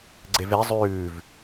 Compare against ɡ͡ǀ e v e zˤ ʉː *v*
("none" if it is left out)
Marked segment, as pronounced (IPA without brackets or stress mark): v